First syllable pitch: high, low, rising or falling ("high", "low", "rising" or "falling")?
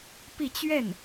falling